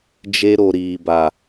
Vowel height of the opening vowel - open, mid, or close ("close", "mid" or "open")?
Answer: mid